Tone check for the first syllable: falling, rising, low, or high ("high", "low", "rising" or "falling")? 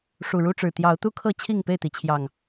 low